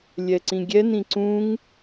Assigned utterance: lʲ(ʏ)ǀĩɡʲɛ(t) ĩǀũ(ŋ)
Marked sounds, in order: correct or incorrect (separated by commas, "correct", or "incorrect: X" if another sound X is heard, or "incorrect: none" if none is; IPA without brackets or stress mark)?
incorrect: ɛ, incorrect: n, correct